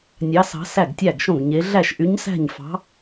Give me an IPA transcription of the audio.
nʲɑ˧˥sɑ̤˧˥ sæ˥˨ɡtʲæ˥˨ɡʃõ˥˨ɡ ɲe˧˥ ɮæ˥˨ʃʔy˧˥ɲsæ̤˥˨ɲfɑ̤˧˥

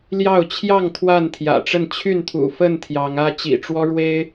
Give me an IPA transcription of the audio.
ljɑ˥˨ʊ̯ t͡ɕʰjɑ˥˨ŋ t̪ʰwa˥˨nt̪ʰjä̰˨˩ʈ͡ʂə˥˨n t͡ɕʰy˥˨nt̪ʰṵ˨˩ fə˥˨n t̪ʰjɑ˨˦ŋä˦ t͡ɕḭ˨˩ʈ͡ʂwɔ˦ɻwe˦ɪ̯

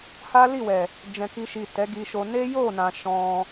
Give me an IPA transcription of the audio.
ha˦li˦˨wɛ˨ | d͡ʒɛ̃˨ki˧ʃi˨ tɛ˨˦ɡi˧ʃo˧ ne˦jo˦˨nã˨ ʃɔ̃˧

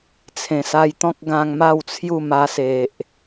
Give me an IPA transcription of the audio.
t͡sʰẽ˨˩sa˧jt̪ɔ̃˦k̚ɡã˧ŋ ma˥˧wt͡sʰju˥˧ma˧ se˨ʔ

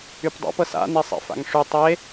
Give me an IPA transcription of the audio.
ypdˤa̰p ɤsa̰ nesˤḛfa̰ŋʂy tˤe

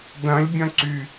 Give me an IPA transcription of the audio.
dɐ̃lʲbʲɐ̃ǀy

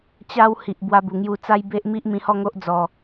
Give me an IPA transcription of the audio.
t͡ɕa˦w hi˨ʔbwa˧bu˨˩ŋju˧ t͡sa˦jbe˦ʔmi˦ʔ mĩ˧hɔ˥˧ŋo˦ʔ d͡zɔ˧

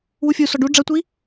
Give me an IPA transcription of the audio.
wufʲusɔ ɖu ɖ͡ʐɐtʷi

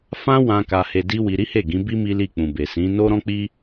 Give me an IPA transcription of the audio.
fã˦ wã˧ ka˧he˧di˦wi˧ ɾi˦he˦˨ɡĩ˨˦bi˦ mi˦li˦˨k͡pũ˨be˨ sĩ˨˦ no˦ɾɔ̃˦k͡pi˦

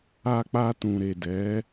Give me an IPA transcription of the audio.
a˧k͡pa˧tũ˨ ɾe˨dɛ˨˦

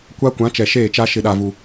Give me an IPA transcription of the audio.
kʷa˦kʷã˨˦ t͡ʃɛ˨ʃeː˦˨t͡ʃa˦ ʃɪ˨ɗa˨vu˨

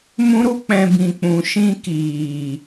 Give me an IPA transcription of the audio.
mũ˦ɾu˦k͡pɛ̃˧ bĩ˨k͡pũ˨ʃĩ˧ kiː˨

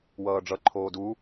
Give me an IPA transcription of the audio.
wʌːɖ͡ʐʌ ǃʰoːdu

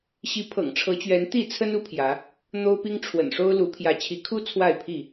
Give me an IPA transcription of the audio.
ɕi˨˦pʰɤ̰˨˩ŋʈ͡ʂʰɤ˨˦t͡ɕɥɛ˨˦n t̪i˥˨t͡sʰə˦nu˦pʰjä˨˦ | n̪o˦ʊ̯pi˦ŋ ʈ͡ʂʰwə̰˨˩nʂo˦ʊ̯lu˨˦ pʰjä˨˦t͡ɕʰi˨˦kʰu˦ t͡sʰwa˥˨ɪ̯pʰi˥˨

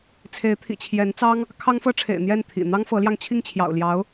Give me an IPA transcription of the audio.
t͡sʰe˧˥ɪ̯t̪ʰḭ˨˩t͡ɕʰjɛ˧˥nt͡sɑ˥ŋ | kʰɑ˥ŋfɤ˥ʈ͡ʂʰḛ˨˩ɪ̯ n̪jɛ˥˩nt̪ʰḭ˨˩ n̪ɑ˥ŋfɤ˧˥ljɑ˧ŋ t͡ɕʰi˥˩ŋt͡ɕʰjɑ̰˨˩ʊ̯ljɑ˧˥ʊ̯

